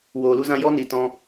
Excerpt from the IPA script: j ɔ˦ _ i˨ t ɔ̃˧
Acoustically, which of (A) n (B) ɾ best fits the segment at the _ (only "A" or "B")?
A